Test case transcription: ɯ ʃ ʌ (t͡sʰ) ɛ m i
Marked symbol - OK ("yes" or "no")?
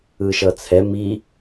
yes